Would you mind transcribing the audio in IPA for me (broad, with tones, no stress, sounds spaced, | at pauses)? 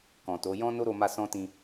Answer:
k ɔ̃˨ t o˨˦ j ɔ̃˦ n o˦ ɾ o˧ m a˧ s ɔ̃˦ t ĩ˧